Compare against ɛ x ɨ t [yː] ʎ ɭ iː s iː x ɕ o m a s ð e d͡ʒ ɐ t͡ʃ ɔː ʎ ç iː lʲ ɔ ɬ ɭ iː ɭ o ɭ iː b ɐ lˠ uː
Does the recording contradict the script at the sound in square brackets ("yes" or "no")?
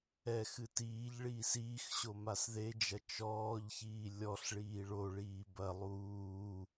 yes